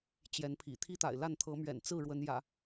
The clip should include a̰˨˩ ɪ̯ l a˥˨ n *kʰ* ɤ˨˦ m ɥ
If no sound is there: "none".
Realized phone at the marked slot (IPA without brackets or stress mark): t̪ʰ